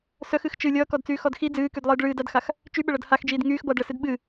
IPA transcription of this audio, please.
s œ x ɨ x t͡ʃ ɨ lʲ ʌː k ɔ d t͡s yː x ɔ d x i d͡z ɨː k y d lˠ ɨː d ɭ ɨː d a d x a x | t͡ʃ y ɓ ə ɭ ʌ d h a x d͡ʒ iː d ŋ yː x b ʌː d ɭ ə s ɨ d ɓ ɨ

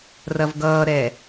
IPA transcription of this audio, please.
r ɐ v ɡ ʌː ɾ ɛ

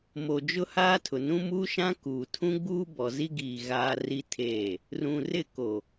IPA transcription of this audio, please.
m o˨ d͡ʒ ʊ˦ h aː˦ tʰ ʊ˨ n ũ˦ m uː˦ ʃ ã˦ k uː˨ tʰ ũ˦ ɡ͡b uː˦ b ɔ˨ z i˦ ɡ iː˨ ɣ aː˦ r i˦ tʰ eː˦˨ | r ũ˨ r ɪ˦˨ k o˨

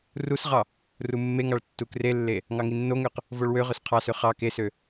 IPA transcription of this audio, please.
r u s ʁ ɑ | r u mː e ŋ ɑ ɭ tː u k r e lː e | ŋ ɑ ŋ i nː o ŋ ø q | v o ɭ w ø ʁ ø s qʰ ɑ s ø χ ɑ k e s ø

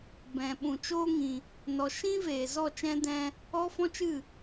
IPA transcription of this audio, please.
b ɛ̃˨ ɓ ũ˨ t͡ʃ oː˦ ŋ ĩ˨ | n ɔ˨ ʃ ĩ˦ v eː˨ z ɔ˦˨ t͡ʃ ɛ̃˦ d ɛ̃˦ | ɔ˦ f ɔ̃˦ t͡ʃ ɨ˦˨

